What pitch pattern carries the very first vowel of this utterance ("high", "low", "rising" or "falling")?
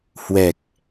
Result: low